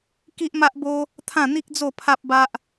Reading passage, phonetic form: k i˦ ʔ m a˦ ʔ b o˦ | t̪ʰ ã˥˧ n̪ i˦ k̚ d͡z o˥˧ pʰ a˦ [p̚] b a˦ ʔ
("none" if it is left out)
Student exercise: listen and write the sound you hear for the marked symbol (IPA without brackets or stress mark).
p̚